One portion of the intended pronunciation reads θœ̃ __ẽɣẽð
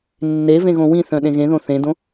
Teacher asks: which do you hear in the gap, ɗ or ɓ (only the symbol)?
ɗ